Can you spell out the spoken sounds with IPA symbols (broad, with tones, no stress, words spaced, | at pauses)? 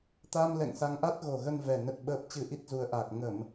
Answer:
t̪a˧mlɛ̰˧˨ŋ sa˨˦ŋʔa˦˥t̚ɣo˨˩ɣə˧n vɛ˨˩ nə˦˥t̚ɓəː˦˥p̚ t͡ɕɨ˧ʔi˦˥t̚zu˨˦ə̯ʔaː˨˩k̚ ŋə˧˩˨m